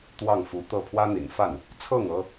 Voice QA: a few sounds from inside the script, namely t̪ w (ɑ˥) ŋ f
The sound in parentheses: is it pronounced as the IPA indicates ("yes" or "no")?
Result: no